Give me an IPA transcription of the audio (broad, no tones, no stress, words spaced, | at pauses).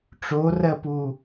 ʈ͡ʂorɜpu